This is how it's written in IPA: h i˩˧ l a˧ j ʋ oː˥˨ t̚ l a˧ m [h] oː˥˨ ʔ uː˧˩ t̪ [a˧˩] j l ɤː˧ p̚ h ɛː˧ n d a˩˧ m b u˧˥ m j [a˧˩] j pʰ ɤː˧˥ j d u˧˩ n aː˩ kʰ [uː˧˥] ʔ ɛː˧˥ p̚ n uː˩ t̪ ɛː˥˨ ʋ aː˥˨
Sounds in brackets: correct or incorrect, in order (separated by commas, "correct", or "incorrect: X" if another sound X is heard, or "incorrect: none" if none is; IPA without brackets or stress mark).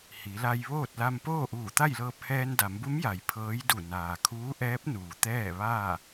incorrect: p, incorrect: a˥˨, incorrect: a˩, correct